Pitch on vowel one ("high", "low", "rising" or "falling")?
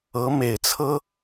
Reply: rising